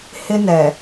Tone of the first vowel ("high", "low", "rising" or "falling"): high